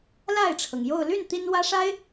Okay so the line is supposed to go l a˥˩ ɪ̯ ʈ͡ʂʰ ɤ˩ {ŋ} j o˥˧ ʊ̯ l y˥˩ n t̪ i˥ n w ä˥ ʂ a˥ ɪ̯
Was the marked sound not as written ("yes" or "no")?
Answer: no